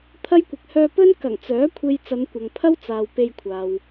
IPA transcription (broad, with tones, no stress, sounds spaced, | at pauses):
t̪ʰ ɐ˥ j kʷ ɪ˨˥ k̚ h œː˧ p ɵ˥ n k ɐ˨˩ ŋ t͡s œː˨˥ kʷʰ e˧ j t͡s ɐ˨˧ n kʷ ɐ˨ ŋ pʰ ɐ˥ w t͡s aː˨ w p e˧ j kʷʰ aː˨ w